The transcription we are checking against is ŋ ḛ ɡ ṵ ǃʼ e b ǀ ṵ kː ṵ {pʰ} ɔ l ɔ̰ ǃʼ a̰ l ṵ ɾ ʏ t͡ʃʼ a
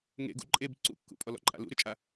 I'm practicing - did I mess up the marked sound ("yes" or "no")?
yes